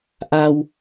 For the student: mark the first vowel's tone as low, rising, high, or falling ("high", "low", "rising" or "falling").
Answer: low